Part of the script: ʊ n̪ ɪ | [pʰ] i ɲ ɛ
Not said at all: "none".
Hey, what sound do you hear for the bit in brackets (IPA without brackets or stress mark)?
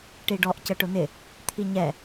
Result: t̪ʰ